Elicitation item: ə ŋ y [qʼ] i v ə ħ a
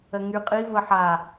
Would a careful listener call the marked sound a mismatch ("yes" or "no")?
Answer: no